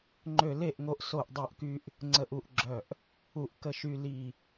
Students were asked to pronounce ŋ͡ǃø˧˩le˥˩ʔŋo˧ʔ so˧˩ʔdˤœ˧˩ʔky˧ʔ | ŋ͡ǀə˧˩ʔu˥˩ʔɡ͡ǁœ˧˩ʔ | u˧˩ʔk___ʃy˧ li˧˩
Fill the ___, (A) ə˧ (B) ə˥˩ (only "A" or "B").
A